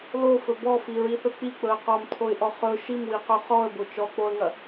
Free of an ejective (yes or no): yes